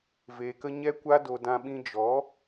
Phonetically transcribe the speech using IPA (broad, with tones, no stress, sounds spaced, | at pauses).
v eː˨ k ə˧ ɲ ɛ˦ kʷ a˦ d o˧ d ã˧ ɓ ĩ˧ d͡ʒ ɔ˨˦